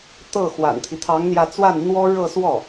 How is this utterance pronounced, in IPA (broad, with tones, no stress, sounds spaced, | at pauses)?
t̪ ɤ˥˩ x w a̰˨˩ n t̪ʰ i˦ t̪ʰ ɑ˧˥ ŋ n̪ j ä˧ t͡s w a˥˩ n n̪ w ɔ˥ ɻ ɤ˥˧ s w ɔ˥˩